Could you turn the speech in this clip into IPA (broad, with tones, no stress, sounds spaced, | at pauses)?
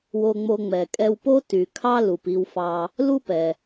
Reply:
w o˧ ŋ͡m o˧ ŋ͡m ɛ˩ kʼ ɛ˧ w p o˥ t y˩ kʰ ɑ˥ l u˩ p i˧ w f ɑ˧ | l u˥ p ɛ˩